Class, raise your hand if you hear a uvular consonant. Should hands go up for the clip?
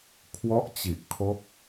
no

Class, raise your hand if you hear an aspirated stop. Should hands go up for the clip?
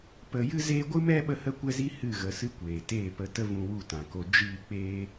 no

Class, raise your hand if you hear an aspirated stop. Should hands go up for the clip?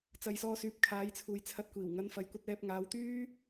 yes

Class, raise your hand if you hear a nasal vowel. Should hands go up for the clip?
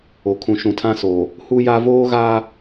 yes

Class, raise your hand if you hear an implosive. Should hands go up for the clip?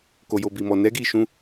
no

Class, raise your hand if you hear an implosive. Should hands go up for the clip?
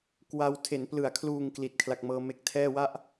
no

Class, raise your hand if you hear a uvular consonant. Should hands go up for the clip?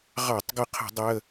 yes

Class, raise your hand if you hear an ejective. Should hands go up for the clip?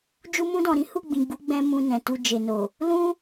no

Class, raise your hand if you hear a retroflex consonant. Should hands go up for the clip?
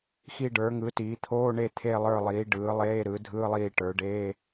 yes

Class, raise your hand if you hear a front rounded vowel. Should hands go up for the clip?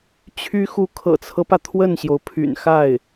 yes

